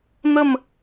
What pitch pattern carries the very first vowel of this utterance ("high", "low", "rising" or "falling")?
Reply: falling